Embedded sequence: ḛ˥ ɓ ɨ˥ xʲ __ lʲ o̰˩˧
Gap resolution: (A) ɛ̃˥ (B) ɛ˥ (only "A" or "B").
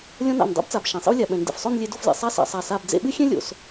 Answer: A